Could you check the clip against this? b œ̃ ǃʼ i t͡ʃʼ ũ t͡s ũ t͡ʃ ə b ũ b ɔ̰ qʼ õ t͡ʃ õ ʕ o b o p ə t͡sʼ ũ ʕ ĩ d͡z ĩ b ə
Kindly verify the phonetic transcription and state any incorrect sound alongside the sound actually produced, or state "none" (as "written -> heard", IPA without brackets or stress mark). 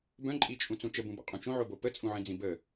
none